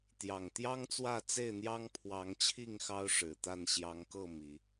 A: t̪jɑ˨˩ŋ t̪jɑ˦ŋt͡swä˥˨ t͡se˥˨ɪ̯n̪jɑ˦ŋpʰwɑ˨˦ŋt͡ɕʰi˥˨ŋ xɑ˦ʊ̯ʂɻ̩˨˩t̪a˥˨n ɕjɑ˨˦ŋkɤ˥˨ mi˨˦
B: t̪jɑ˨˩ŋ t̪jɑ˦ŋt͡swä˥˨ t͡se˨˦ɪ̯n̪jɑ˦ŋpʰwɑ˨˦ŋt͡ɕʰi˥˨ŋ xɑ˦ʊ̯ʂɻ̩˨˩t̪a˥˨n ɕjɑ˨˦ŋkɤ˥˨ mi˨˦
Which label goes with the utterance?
A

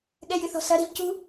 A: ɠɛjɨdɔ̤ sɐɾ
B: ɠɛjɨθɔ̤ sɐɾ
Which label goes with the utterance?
B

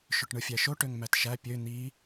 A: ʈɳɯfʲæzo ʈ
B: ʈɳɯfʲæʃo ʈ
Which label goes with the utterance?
B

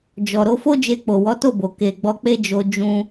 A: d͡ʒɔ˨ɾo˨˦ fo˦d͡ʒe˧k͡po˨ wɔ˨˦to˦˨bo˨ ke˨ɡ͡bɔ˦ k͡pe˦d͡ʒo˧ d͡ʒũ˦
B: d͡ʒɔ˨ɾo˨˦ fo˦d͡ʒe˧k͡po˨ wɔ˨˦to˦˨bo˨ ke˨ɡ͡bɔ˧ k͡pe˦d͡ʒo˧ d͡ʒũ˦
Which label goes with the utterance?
B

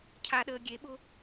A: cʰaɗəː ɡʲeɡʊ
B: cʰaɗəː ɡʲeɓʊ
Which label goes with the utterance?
B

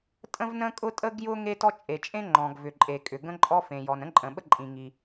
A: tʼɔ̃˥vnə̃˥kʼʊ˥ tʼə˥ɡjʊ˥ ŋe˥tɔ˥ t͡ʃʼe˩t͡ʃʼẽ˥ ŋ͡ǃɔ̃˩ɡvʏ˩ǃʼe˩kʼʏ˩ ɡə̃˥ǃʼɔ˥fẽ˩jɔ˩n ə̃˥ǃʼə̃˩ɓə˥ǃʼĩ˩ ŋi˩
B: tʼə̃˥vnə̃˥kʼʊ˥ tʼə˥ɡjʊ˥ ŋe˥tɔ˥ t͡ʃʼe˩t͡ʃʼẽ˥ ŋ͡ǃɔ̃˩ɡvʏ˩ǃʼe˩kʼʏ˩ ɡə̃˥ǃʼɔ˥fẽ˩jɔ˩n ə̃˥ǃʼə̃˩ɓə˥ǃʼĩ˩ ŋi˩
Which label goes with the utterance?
B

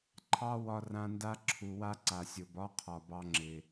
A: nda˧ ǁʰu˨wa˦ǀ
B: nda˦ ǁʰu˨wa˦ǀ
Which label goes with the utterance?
B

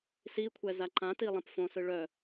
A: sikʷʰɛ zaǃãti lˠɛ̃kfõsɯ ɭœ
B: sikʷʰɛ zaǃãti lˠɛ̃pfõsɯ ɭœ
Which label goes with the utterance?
B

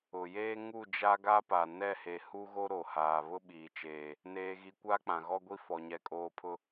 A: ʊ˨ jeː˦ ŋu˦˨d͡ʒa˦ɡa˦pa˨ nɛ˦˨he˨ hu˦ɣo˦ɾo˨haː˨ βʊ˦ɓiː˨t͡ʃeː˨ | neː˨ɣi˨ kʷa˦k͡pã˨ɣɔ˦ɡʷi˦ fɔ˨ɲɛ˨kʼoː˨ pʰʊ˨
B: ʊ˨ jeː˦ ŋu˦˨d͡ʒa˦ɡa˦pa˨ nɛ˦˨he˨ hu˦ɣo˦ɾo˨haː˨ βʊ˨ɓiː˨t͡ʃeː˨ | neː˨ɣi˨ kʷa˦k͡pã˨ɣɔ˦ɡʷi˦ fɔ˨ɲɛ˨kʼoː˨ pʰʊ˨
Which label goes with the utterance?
A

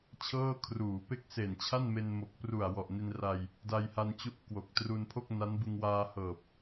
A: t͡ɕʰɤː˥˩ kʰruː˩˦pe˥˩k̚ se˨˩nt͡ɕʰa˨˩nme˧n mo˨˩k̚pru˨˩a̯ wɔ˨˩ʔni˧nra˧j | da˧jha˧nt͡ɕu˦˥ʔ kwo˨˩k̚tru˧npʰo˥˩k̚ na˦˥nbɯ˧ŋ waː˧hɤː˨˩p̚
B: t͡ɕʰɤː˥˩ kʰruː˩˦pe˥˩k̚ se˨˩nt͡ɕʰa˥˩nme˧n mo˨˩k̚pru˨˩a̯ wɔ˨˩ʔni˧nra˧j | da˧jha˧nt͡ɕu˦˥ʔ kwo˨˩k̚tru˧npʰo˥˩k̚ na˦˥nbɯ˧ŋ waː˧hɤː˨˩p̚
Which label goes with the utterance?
B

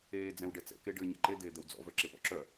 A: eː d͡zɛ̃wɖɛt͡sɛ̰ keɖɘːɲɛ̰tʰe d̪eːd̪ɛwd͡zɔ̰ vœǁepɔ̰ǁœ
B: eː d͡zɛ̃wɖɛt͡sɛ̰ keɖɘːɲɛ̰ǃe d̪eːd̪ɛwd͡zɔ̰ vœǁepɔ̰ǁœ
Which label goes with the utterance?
B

